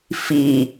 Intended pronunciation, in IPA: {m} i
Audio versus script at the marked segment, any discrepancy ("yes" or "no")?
yes